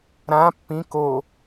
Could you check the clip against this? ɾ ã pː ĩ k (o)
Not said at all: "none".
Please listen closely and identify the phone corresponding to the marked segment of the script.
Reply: o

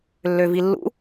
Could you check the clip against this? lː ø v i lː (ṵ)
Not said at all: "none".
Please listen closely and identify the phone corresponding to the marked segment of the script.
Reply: ṵ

